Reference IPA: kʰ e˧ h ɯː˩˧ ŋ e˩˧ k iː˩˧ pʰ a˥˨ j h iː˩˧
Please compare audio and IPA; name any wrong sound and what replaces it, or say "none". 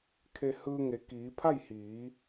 ɯː˩˧ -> ɯː˧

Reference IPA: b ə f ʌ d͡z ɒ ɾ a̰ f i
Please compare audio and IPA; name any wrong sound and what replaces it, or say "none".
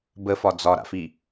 ʌ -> ɒ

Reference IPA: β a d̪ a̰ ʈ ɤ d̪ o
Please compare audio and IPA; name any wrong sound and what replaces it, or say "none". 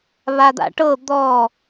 o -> ɔ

